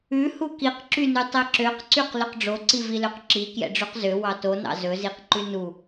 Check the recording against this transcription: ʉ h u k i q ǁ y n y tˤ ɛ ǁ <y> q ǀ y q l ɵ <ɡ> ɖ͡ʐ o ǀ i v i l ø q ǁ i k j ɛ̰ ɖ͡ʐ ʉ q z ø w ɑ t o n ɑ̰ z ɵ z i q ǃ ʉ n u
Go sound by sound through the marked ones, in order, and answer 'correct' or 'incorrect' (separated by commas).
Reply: incorrect, incorrect